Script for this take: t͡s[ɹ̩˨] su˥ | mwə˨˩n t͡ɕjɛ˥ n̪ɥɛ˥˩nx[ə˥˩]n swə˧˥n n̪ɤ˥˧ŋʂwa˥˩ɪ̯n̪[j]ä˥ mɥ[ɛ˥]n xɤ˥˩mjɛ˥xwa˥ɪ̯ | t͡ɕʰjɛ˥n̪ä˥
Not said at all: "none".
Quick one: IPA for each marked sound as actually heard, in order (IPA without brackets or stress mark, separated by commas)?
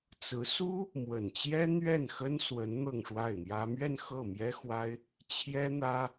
ɹ̩˧˥, ə˥, j, ɛ˥˧